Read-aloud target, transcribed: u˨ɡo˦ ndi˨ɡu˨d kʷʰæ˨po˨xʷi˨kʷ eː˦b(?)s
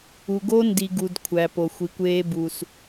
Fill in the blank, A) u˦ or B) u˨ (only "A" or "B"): B